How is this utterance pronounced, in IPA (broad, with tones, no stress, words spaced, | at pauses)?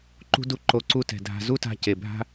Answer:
ǃṳ˧du˧ ǃo˧ǀu˦tɛ̤˨dʱa̤˧ zu˦ta̤˧ce˨bʱa̤˦